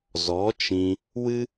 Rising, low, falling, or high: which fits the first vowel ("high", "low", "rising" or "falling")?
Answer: rising